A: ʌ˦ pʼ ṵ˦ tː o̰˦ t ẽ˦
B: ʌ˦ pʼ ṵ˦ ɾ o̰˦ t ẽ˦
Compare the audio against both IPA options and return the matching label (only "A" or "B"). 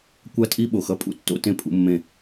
A